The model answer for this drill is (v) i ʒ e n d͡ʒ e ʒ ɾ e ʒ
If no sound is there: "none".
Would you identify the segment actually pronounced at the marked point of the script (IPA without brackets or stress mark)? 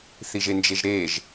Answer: θ